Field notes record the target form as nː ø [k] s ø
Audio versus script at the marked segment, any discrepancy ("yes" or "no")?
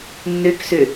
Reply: no